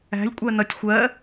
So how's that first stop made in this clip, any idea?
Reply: ejective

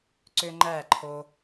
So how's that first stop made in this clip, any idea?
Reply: click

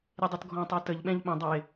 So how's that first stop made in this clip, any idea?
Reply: plain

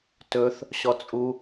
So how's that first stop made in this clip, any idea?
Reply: plain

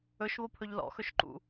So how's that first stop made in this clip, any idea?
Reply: aspirated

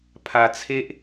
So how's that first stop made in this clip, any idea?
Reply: aspirated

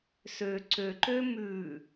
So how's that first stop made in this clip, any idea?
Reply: click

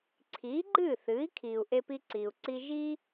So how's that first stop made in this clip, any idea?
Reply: click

